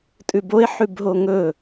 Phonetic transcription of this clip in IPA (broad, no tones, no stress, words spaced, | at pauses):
tʼʉboe̯ ħʉbɦoŋɵ